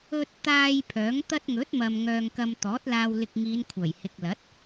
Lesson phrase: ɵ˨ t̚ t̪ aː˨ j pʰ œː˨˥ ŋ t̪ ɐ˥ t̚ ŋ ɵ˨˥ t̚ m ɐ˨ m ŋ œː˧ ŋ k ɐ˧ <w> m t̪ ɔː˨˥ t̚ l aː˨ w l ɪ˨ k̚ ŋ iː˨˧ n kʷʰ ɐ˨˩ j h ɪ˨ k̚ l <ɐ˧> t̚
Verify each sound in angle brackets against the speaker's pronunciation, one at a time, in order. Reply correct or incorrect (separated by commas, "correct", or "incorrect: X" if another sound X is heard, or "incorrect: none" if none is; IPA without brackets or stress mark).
incorrect: none, incorrect: ɐ˨˥